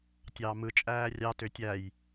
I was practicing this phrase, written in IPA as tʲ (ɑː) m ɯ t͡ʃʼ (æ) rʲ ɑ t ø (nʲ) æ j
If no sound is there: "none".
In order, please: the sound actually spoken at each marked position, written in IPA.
ɑː, æː, tʲ

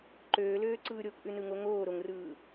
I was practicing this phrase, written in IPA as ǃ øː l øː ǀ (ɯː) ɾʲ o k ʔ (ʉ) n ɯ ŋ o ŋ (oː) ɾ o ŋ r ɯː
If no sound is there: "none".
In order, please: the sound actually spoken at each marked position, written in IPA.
ɯː, ʉ, oː

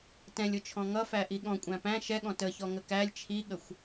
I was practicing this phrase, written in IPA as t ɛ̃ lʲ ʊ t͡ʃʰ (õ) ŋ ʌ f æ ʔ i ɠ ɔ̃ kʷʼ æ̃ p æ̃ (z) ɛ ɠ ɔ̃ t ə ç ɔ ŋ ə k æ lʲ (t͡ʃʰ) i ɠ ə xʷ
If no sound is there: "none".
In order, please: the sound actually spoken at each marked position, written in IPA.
ɔ̃, ʃ, t͡ʃʰ

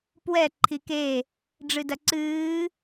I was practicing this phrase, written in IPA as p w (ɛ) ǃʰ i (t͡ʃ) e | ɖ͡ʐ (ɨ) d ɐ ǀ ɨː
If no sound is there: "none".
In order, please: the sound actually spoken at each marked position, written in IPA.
ɛ, k, ɨ

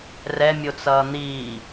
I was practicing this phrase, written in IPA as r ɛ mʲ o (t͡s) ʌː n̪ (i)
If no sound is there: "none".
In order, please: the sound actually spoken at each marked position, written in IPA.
t͡s, iː

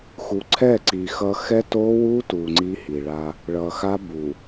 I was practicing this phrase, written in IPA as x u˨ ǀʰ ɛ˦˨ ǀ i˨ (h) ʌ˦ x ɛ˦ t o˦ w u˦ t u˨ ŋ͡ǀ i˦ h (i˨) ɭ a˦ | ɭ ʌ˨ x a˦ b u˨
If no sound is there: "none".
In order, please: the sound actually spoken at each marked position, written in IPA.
x, i˨

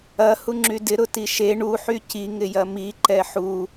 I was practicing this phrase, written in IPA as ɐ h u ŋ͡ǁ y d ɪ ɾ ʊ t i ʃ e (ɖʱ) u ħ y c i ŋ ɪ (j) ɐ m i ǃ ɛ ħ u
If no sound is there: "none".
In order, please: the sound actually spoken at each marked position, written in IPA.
ɳ, j

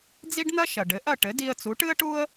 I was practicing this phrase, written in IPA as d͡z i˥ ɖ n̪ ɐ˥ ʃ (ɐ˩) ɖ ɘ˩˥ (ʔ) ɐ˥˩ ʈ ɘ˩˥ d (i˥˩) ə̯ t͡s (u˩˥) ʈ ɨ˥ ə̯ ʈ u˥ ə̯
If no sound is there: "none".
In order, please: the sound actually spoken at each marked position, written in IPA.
ɐ˩, ʔ, i˧, u˩˥

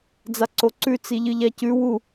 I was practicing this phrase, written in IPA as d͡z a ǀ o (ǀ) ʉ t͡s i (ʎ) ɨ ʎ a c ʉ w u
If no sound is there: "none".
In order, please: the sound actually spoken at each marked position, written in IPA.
ǀ, ʎ

